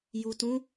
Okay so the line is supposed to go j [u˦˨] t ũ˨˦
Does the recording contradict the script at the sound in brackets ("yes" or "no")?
yes